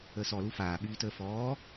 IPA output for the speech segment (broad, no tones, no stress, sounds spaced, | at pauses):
əː s ɔ l u f aː ɓ yː t əː f ɔː